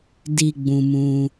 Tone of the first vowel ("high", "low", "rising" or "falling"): low